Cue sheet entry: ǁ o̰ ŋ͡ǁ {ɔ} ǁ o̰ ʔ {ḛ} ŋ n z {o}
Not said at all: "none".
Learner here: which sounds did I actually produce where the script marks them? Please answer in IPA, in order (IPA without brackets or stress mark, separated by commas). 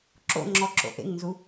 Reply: ɔ, ḛ, u